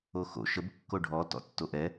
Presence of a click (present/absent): absent